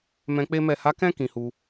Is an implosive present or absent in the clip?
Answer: absent